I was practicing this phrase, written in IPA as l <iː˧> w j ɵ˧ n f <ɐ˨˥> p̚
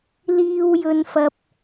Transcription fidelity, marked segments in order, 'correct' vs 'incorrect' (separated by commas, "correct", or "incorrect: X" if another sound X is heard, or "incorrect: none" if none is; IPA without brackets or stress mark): correct, incorrect: ɐ˧